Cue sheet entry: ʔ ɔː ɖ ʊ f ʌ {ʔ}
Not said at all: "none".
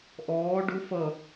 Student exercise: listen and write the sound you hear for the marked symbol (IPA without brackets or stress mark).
none